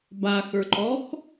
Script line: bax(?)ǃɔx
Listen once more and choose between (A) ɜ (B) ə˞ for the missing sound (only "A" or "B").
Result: B